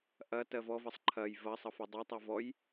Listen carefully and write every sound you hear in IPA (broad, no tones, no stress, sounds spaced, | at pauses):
ʔ ɐ t ɜ v ɔ v ɐ sˤ ǃʰ ɐ j v ɐ sˤ ʌ f ɐ dˤ ɛ tˤ ʌ v ɔ j